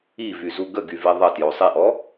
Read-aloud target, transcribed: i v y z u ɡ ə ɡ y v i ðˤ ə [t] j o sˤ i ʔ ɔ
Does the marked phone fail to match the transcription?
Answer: no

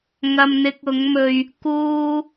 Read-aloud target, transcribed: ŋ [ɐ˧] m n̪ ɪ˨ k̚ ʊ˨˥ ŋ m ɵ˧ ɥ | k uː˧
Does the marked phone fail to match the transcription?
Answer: yes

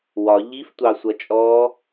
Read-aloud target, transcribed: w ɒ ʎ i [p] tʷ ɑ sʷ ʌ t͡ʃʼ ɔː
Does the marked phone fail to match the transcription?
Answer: yes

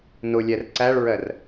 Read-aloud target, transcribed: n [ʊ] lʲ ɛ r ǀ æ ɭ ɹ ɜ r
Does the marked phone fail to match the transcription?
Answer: no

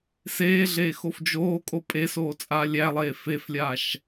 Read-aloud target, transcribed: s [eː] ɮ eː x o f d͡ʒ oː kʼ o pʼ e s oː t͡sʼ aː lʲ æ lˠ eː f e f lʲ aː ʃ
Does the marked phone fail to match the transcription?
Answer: no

